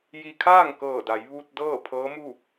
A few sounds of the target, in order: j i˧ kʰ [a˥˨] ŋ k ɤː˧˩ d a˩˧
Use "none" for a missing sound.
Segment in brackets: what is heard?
aː˥˨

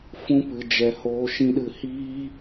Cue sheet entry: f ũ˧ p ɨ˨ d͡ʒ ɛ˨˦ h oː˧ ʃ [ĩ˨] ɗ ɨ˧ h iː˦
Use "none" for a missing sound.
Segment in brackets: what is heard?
ĩ˦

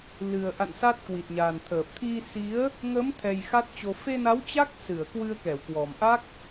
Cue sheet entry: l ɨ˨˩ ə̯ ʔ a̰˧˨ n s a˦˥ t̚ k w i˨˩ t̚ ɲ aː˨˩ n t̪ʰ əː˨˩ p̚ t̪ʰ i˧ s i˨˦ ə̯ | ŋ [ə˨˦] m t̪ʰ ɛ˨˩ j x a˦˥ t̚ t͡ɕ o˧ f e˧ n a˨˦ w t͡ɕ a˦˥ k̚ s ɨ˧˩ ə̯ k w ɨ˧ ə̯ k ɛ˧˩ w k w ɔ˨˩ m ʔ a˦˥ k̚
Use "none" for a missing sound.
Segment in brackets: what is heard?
ə˨˦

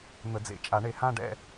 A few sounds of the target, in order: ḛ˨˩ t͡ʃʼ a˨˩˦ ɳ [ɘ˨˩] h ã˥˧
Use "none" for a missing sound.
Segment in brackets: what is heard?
e˨˩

